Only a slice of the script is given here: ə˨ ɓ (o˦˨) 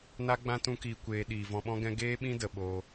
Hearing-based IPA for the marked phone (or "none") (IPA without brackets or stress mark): o˧